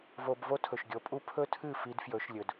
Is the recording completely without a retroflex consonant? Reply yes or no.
yes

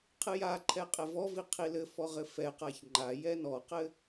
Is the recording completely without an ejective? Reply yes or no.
no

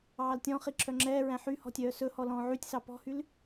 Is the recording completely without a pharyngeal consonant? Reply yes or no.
no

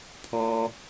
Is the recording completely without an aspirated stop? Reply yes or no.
no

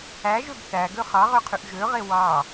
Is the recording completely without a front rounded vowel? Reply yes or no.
no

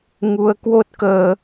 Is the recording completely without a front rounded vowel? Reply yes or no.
yes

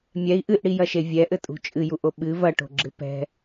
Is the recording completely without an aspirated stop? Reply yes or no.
yes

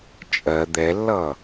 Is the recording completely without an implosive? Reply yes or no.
yes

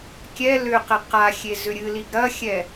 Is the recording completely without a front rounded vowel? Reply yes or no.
no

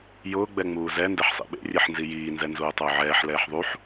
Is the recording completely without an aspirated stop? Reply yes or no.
yes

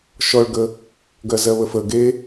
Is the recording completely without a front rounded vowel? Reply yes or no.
yes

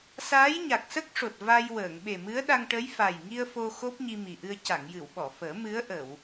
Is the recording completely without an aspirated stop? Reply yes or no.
yes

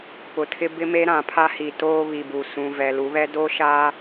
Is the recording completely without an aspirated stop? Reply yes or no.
no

